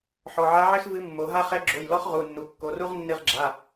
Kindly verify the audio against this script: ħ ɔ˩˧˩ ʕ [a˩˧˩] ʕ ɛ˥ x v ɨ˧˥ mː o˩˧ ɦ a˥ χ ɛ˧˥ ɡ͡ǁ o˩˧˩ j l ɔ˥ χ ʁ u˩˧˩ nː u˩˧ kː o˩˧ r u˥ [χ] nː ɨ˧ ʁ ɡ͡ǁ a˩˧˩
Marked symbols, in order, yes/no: no, no

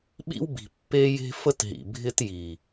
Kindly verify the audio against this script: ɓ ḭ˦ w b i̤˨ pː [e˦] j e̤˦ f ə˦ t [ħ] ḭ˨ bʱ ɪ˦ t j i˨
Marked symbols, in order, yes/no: yes, no

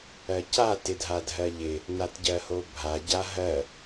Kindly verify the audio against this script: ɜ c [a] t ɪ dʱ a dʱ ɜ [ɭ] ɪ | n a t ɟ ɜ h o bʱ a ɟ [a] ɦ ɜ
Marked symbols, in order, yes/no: yes, no, yes

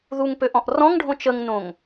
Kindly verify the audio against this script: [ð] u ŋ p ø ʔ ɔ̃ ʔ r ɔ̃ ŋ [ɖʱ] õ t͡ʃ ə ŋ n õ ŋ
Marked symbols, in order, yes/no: yes, yes

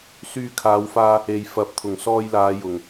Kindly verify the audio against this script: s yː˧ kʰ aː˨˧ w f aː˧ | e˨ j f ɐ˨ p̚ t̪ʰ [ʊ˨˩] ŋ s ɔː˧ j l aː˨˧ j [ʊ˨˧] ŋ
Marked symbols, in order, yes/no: yes, no

